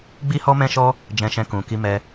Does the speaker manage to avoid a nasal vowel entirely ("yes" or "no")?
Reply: no